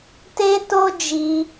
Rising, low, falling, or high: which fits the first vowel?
high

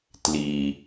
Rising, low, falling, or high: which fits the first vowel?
low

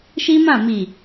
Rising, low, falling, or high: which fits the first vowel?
high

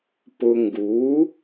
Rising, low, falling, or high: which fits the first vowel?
low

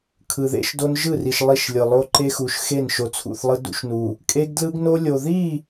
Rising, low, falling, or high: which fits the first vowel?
low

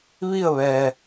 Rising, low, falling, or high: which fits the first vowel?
falling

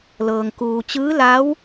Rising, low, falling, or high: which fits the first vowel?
low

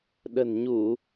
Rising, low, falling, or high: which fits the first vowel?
low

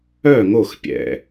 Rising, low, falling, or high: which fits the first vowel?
falling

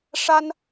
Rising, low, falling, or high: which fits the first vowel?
high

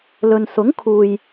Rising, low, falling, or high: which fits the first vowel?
low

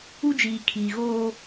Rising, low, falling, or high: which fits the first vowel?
high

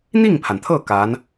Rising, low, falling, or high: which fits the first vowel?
falling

